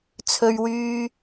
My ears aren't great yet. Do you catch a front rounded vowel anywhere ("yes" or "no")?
yes